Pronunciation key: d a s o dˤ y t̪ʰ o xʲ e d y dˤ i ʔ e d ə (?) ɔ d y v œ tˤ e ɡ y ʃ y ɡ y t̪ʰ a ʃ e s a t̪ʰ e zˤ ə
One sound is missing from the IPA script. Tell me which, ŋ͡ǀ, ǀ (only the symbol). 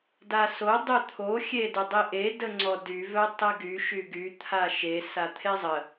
ŋ͡ǀ